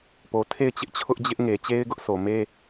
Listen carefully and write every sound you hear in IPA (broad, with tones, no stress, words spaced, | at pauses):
po˨ tʰe˦˨ɪ̯t͡ɕɪ˦ʔ t͡ɕʰʊ˦ʔd͡ʑɪ˦ʔŋe˨ t͡ɕe˦ɪ̯ɡʊ˦ʔsʰo˨me˦